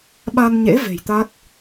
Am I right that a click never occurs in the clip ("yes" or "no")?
yes